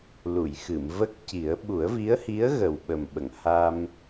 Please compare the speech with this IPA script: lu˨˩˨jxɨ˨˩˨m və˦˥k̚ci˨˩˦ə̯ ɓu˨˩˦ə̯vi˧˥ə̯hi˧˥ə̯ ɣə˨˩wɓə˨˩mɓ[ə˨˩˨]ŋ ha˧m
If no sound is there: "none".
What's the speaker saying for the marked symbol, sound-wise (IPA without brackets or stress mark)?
ə˨˩˨